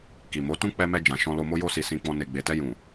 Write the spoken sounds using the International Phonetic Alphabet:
ki˨mo˨˦tũ˦ k͡pɛ˧mɛ˧ d͡ʒã˨ʃɔ̃˧lo˧mo˦ jo˧si˨ sĩ˧k͡pɔ̃˧ ne˨ɡ͡be˨tɛ˧ jũ˨

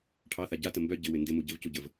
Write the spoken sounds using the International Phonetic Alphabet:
ʈʰɑθa ɟatə mbœ ɟɪwɪ ndɪmu ɟɪvcuɟəv

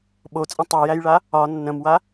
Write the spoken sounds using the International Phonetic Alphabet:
ɓot͡sʼə̃ tˤojæjɭa | ɒ nːə̃mwa

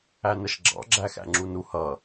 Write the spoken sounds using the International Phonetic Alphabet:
ænəʃɡ͡ǁɑ̰ ɡ͡ǁæxæ̰ŋ͡ǁunu hʌ

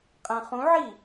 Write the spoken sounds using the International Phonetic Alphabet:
qʼæ̃χũʕi

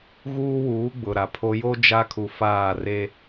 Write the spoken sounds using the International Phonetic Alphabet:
ɣuː˦wuː˨˦ ɡ͡bʊ˨ɾa˨pʰo˦ jo˦ d͡ʒa˦kʰu˨faː˦˨ re˦

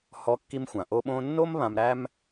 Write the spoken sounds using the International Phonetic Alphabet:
hɔ˧ kːi˧mxʷã˩ʔo˧ ɓõ˧nːo˥m βã˧mɾæ˥m

